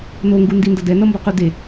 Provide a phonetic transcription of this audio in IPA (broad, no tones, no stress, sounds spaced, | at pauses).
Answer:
n o ŋ ɡ u n d i n d ʌ d ɛ n ʌ m b ʌ q u d e